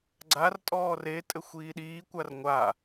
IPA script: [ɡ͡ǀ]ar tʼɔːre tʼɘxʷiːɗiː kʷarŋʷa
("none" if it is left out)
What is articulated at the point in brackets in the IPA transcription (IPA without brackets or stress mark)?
ɡ͡ǀ